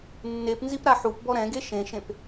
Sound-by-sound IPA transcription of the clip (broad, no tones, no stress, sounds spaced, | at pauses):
nː e p n z i p ɾ a ħ u p b ɔ ɾ ɛ̃ ɡ e ʃ ẽ ʃ ẽ p